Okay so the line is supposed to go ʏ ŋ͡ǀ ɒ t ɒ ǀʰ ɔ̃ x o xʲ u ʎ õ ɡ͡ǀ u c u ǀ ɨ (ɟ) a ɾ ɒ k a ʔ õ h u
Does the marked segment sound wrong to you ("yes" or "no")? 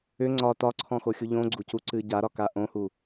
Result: no